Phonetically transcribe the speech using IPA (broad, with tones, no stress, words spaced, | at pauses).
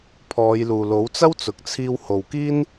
pʰɔː˨˧jluː˨lo˨˥w t͡sɐ˥wt͡sʊ˨k̚t͡sʰiː˧w ho˨wkiː˥n